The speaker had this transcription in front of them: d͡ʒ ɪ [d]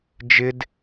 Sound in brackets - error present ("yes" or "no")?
no